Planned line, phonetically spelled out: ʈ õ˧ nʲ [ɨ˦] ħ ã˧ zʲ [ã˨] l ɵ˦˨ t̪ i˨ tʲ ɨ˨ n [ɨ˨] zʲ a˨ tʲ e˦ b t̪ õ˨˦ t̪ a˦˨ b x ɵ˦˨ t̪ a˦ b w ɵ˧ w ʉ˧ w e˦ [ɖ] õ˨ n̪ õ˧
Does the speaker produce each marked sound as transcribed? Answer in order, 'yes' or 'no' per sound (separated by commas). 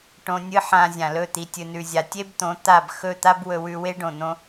yes, yes, no, yes